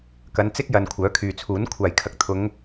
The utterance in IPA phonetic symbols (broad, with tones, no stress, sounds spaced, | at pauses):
k ɐ˨˧ n t͡s ɪ˥ k̚ j ɐ˨ n kʷʰ œː˨˥ kʰ yː˨ t͡sʰ uː˨˥ n kʷʰ aː˨˩ j kʰ ɐ˨˥ k̚ t̪ʰ ʊ˨˧ ŋ